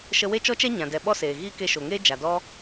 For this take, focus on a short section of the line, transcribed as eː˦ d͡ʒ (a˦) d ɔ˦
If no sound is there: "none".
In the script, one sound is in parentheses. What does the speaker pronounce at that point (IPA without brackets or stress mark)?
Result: a˨